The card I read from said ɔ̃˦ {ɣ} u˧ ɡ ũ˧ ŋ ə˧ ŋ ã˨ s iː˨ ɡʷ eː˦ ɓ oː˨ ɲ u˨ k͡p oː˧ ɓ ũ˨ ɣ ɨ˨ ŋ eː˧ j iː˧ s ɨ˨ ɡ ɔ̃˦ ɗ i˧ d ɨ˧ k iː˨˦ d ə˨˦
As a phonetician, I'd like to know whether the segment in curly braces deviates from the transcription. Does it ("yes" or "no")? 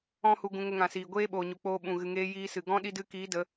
yes